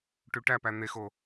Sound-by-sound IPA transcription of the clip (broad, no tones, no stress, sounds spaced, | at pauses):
ʈ y ʈ æ p æ n̪ e x o